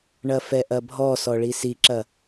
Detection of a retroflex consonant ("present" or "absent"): present